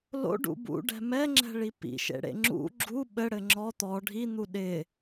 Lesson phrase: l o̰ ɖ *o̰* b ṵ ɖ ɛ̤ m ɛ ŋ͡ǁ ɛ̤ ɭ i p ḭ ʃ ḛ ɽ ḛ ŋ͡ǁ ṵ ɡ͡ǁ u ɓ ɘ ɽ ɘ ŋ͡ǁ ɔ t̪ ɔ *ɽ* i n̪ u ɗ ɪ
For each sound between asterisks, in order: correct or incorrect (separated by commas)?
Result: incorrect, incorrect